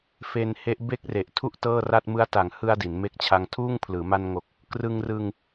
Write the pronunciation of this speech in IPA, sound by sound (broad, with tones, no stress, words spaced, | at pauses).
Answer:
fe˧n he˦˥ʔ be˦˥k̚re˨˩ʔtʰu˦˥ʔ tɤː˥˩ra˥˩t̚ mɯ˦˥a̯ta˨˩ŋhɯ˧a̯ di˩˦nme˦˥k̚t͡ɕʰa˧ŋtʰuː˥˩ŋ pʰlɯː˩˦ma˧nŋo˨˩k̚ | krɯ˧ŋrɯ˧ŋ